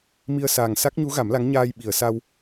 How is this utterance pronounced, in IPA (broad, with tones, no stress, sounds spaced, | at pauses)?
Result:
m i˧ ə̯ s aː˨˩ ŋ s a˦˥ k̚ ɲ u˧˥ ɣ a˨˩˦ m l a˧˥ ŋ ɲ aː˧ j ɓ i˨˩˨ ə̯ s a˧ w